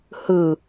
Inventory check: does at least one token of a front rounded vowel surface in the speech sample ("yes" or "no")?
no